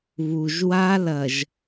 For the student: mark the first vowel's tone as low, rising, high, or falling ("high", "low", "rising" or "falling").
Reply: low